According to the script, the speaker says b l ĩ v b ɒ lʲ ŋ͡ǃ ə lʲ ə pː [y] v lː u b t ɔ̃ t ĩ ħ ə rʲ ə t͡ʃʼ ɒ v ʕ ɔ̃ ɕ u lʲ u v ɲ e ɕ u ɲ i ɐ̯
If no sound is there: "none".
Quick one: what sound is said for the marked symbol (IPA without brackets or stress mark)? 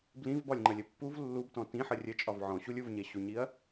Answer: u